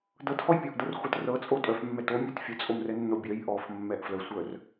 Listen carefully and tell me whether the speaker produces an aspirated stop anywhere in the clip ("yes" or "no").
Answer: no